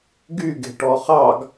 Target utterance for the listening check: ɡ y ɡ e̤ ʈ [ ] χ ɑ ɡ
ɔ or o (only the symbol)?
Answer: ɔ